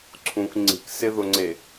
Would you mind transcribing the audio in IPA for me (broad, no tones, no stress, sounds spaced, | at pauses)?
ǀʰ ũ k ŋ͡ǀ i̤ k s ɪ ð ʊ ŋ͡ǀ e